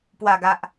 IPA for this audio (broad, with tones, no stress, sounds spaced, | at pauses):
p w a˨˩ ɡ a˨ ʔ